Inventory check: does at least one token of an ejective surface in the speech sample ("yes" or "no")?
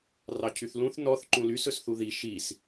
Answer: no